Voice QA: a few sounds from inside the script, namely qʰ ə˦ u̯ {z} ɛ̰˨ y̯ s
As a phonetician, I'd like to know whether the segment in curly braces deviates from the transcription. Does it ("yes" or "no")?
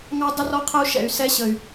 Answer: yes